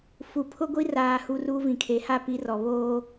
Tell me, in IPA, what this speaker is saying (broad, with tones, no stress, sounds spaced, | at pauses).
f u˨ pʰ ʊ˦ ɡʷ i˦ r aː˨ h u˨ r uː˦ v ĩ˨ kʰ e˨˦ h a˦˨ p i˨˦ r ɔ˨ β oː˦